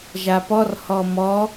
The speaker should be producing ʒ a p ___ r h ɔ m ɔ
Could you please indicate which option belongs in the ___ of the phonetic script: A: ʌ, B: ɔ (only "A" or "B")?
B